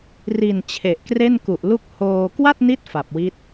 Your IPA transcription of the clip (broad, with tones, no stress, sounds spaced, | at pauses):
r i˨˩ n t͡ɕʰ e˨˩ ʔ k r e˥˩ n k u˨˩ ʔ l u˥˩ k̚ h oː˧ k w a˥˩ t̚ n i˦˥ t̚ f a˨˩ p̚ w i˦˥ t̚